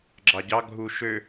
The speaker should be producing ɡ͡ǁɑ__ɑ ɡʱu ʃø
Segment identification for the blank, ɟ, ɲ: ɟ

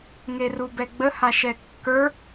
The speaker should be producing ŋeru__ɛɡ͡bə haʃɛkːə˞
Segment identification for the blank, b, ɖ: b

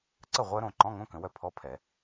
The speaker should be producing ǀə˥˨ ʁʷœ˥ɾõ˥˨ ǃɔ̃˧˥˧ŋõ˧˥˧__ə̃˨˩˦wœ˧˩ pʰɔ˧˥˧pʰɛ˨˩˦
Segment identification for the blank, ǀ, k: k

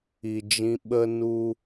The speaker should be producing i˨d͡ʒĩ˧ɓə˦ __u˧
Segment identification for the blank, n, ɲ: n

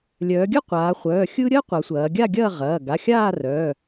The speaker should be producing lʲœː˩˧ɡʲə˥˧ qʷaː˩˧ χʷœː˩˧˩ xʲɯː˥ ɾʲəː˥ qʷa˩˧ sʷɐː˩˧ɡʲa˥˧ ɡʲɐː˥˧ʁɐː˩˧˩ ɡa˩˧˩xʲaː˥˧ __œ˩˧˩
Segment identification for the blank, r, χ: r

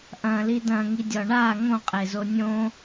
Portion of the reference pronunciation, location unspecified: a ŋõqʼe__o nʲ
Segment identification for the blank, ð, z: z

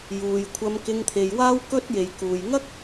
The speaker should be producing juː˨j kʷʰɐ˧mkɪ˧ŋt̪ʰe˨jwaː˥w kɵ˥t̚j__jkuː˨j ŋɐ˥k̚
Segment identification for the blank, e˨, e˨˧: e˨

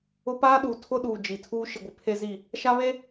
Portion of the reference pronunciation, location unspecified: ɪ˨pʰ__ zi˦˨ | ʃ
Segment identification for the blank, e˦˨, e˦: e˦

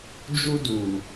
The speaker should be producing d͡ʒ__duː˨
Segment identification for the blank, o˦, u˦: u˦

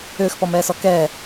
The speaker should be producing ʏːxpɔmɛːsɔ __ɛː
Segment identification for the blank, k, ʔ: k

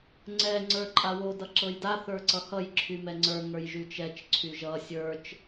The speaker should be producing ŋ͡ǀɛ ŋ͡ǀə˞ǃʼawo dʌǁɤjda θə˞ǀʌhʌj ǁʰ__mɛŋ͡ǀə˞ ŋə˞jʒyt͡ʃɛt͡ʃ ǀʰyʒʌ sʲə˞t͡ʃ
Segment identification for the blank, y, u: y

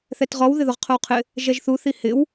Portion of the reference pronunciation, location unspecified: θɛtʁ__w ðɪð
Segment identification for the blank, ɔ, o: ɔ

